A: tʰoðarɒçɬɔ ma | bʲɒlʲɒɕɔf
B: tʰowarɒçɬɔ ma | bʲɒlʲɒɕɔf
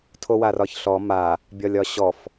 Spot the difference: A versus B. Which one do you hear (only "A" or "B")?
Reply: B